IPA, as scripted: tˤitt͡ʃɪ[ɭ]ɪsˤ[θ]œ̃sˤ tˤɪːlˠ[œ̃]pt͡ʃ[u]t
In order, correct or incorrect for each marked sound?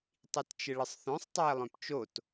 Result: correct, correct, correct, incorrect: o

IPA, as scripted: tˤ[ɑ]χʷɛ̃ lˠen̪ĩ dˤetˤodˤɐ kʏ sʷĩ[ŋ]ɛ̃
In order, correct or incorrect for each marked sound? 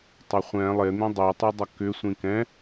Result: incorrect: ɐ, incorrect: k

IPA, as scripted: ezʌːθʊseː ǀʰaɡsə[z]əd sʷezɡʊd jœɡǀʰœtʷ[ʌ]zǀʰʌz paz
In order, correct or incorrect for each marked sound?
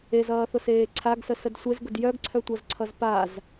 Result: incorrect: s, correct

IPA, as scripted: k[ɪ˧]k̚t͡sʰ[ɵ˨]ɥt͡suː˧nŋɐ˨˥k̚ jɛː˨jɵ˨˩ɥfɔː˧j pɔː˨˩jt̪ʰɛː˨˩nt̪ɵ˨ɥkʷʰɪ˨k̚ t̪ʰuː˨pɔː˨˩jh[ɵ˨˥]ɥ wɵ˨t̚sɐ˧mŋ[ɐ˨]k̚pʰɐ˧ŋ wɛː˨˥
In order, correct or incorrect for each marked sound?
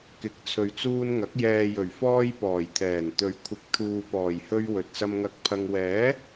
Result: incorrect: ɪ˨˥, correct, incorrect: ɵ˧, incorrect: ɐ˧

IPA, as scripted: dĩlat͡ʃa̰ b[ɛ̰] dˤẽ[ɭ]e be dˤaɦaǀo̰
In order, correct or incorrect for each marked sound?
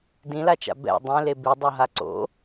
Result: correct, incorrect: l

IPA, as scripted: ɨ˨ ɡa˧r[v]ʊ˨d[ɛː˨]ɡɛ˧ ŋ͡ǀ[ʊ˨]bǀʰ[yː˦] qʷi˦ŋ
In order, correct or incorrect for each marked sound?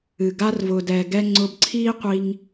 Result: correct, correct, incorrect: ʊ˧, incorrect: iː˦

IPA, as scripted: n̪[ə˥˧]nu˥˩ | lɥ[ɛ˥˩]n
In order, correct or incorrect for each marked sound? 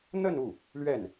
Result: correct, correct

